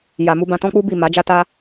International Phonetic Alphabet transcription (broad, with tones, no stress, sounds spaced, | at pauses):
j a˨ m u˧ b ã˧ t ɔ̃˦ k͡p u˦ b i˦˨ m a˨˦ d͡ʒ a˦ t a˦